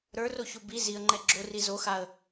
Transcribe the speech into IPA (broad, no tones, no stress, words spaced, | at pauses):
ɾə˞roço bi ziə̯ŋ͡ǃɛ ɡ͡ǁori zoxaə̯